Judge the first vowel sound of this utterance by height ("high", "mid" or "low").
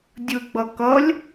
high